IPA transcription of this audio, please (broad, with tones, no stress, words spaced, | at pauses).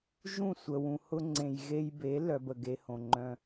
ʒũ˦˨sʷə˨ wũ˨hʊ˧ŋ͡ǀẽ˨j ɣe˧jbe˨˦lœ˨b ə˨ɡe˦hõ˨ŋ͡ǃœ̃˧